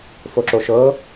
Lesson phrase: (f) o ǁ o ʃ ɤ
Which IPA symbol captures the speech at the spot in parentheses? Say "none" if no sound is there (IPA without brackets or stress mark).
f